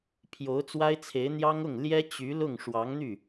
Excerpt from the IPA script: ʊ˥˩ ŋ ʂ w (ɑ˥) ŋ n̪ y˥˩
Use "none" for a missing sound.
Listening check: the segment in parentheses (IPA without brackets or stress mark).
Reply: ɑ˧˥